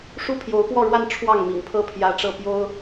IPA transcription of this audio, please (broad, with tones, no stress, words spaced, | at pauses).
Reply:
ʂu˥pʰjo˧˥ʊ̯pwɔ˥˧ɻwa˥˧n ʈ͡ʂʰwɑ˥˩ŋmḭ˨˩ŋpʰɤ˥˩ pʰjä˥ʈ͡ʂɤ˥˩ pjo˥ʊ̯